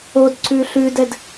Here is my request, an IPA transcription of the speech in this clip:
o d ǀ ʉ ɬ ʉ d ɛ d

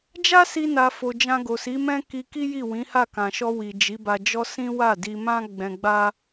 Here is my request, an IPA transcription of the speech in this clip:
d͡ʒ a˦ s i˧ n a˨ f o˨ d͡ʒ ã˧ ɡ o˨ s i˨˦ m ɛ̃˦ k i˧ k i˦ j i˦˨ w ĩ˨˦ h a˦˨ k ã˨ ʃ ɔ˧ w i˨ d͡ʒ i˨˦ b a˧ d͡ʒ ɔ˦ s ĩ˦ w a˦˨ d i˧ m ã˦ ɡ͡b ɛ̃˧ ɡ͡b a˦

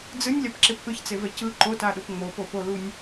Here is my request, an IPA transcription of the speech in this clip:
d͡z ɯ nʲ lʲ a p ǁ e p ʔ ɯ ç t͡s e v ɛ c ɯ ǃ o t a ɗ o p ŋ͡m o p o p o l u nʲ

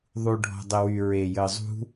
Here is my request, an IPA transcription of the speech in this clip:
ðˤ u ɖʱ ɔ̤ dˤ e w y ɹ e j əː zˤ ṳ

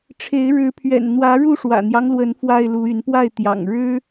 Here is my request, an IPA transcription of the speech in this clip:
ʈ͡ʂʰ e˨˦ ɪ̯ ɻ ɻ̩˨˦ pʰ ɥ ɛ̰˨˩ n n̪ w ä˨˦ ɻ u˥˨ ʂ w ä̰˨˩ n̪ j ɑ˦ ŋ l w ə˨˦ n f w a˥˨ ɪ̯ l u˨˦ y˨˦ n p w a˥˨ ɪ̯ t̪ j ɑ̰˨˩ ŋ ɻ ɻ̩˦

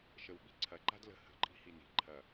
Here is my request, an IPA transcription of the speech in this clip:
ʃ ə w ɓ i̤ ǀʰ ɐ ǃ a̤ d l ə̤ h ə̤ ǃʼ i̤ h i n i̤ ǃʰ ɐ

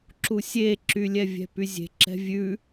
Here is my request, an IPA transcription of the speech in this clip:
ǁ u sʲ e ǁ y lʲ ɛ vʲ ɛ̤ p y zʲ e̤ ǁ ɛ̤ vʲ ʉ

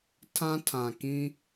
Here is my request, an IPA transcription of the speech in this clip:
tʰ ã˦ tʰ ã˨ k ĩ˦

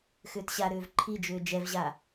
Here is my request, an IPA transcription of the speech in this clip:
x ʏː t ɕ a ɾ ʏː v ǃʰ i d͡ʒ ʏː d͡ʒ ɛ v ʑ a

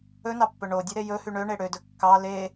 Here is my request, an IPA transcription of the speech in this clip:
ɵ n ɑ pː ɵ ɳ o dʲ u ɾ e j ɵ h y ɳ ø ɳ e ɽ ø d ɵ kː ɑ l e

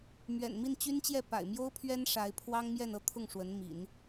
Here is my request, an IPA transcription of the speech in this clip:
m ɥ ɛ̰˨˩ n m i˥˩ n t͡ɕ y˥ n t͡ɕ j ɛ˥˩ p a̰˨˩ ɪ̯ m j o˥ ʊ̯ pʰ ɥ ɛ˥ n ʂ a˧˥ ɪ̯ pʰ w ɑ˥ ŋ m j ɛ˥˧ n ɤ˥˧ t̪ʰ ʊ˥˩ ŋ ʂ w ə˧˥ n m ḭ˨˩˦ n

